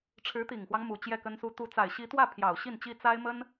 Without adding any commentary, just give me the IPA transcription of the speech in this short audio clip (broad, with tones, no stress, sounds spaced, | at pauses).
ʈ͡ʂʰ ɻ̩˧˥ t̪ i˨˩ ŋ x w ɑ˦ ŋ m u˨˩ t͡ɕ j ɛ˥˩ k ə˥ n s u˥ t̪ u˧˥ t͡s a˨˩ ɪ̯ ɕ i˧˥ t̪ w ä˥˩ pʰ j ɑ˨˩ ʊ̯ ɕ i˥˩ n t͡ɕ i˥ t͡s a˥ ɪ̯ m ə˥ n